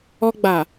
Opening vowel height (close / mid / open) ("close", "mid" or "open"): mid